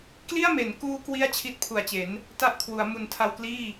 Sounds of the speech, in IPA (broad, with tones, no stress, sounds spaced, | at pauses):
k l i˥˩ a̯ m e˩˦ n k uː˦˥ k w i˥˩ a̯ t͡ɕʰ i˦˥ t̚ pʰ u˨˩ a̯ t͡ɕ e˩˦ n | t a˥˩ ʔ kʰ w u˩˦ a̯ m u˨˩ n tʰ a˧ w k l iː˥˩